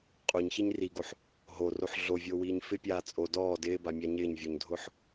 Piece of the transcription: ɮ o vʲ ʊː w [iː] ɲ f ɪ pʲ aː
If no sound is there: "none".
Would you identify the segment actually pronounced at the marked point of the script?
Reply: iː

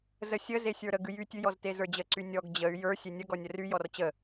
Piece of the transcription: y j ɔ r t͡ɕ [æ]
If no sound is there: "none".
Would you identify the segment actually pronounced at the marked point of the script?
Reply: ə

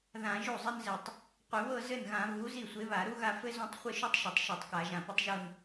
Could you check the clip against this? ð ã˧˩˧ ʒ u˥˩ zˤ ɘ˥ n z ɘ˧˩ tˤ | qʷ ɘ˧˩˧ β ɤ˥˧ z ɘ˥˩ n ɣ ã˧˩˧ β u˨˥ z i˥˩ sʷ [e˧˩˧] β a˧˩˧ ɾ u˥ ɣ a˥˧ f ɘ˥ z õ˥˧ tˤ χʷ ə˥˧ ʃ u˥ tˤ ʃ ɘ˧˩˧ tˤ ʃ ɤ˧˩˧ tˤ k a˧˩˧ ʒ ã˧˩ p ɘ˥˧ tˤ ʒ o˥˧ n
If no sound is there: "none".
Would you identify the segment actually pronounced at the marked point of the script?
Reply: e˨˥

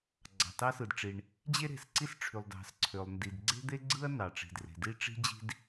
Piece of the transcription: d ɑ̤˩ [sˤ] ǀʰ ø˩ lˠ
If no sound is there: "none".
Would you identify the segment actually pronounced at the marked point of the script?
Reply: s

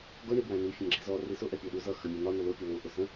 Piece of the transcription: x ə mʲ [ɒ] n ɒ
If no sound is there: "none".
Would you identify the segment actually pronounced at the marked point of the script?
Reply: ʌ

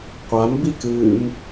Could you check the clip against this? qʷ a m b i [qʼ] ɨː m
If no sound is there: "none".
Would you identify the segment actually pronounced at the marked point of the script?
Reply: k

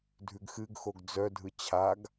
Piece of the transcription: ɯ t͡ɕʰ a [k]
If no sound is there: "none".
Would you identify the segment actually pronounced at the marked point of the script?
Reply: ɡ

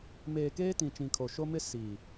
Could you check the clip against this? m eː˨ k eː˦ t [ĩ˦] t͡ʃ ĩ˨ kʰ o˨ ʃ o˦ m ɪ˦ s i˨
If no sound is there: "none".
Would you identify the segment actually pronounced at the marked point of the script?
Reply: ĩ˨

